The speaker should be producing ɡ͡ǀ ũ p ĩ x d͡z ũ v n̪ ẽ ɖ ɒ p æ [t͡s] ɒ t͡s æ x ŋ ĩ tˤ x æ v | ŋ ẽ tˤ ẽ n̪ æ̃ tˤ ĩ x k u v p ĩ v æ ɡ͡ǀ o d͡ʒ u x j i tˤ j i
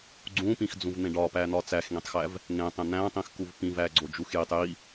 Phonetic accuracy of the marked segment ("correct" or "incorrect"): incorrect